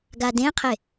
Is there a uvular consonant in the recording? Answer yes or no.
yes